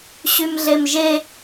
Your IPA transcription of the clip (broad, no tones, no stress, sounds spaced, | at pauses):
ɕ y m ɮ e m ʒ e